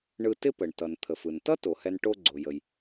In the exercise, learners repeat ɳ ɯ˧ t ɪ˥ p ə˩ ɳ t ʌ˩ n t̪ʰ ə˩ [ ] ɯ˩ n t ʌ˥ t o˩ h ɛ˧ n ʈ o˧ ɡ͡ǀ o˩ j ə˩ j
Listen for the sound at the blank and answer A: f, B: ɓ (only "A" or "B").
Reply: A